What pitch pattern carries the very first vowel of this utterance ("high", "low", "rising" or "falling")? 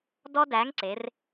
high